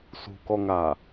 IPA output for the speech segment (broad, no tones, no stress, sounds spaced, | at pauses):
s ṳ k ɔ ŋ a